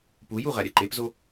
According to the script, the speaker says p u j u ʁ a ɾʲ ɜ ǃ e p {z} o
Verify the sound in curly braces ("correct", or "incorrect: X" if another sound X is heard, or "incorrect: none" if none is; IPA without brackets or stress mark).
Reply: correct